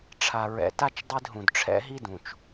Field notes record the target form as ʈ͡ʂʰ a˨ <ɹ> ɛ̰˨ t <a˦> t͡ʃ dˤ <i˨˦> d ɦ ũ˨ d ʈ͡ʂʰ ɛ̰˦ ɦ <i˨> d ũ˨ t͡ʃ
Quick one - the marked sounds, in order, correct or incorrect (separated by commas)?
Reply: correct, correct, incorrect, incorrect